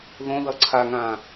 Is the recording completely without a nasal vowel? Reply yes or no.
no